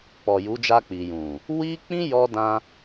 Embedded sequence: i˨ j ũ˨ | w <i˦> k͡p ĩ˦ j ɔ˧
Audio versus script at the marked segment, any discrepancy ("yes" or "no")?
no